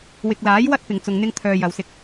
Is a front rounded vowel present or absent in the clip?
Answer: present